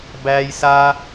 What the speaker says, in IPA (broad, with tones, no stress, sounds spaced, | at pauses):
b æ˦ j s a˦